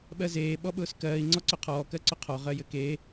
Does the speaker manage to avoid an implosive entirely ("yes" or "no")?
no